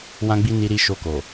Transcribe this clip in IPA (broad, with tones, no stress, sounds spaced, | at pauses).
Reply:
w ã˧ ɡ͡b i˧ n i˧ ɾ i˧ ʃ o˧ k o˨